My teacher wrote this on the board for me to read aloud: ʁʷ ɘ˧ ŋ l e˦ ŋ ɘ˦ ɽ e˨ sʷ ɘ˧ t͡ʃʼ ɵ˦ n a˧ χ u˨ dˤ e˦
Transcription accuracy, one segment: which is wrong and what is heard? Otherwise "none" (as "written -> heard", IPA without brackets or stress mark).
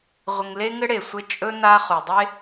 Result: none